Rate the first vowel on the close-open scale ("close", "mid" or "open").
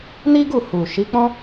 close